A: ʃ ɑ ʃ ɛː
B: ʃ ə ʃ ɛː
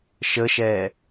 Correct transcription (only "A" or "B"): B